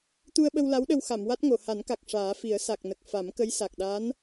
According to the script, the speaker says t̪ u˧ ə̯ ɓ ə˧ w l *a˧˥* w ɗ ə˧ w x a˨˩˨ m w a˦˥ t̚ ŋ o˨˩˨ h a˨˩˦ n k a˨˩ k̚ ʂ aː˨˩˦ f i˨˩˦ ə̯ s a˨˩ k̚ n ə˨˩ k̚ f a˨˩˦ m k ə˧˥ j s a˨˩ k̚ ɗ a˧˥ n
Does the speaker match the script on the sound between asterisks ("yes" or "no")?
yes